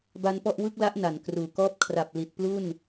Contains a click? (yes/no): no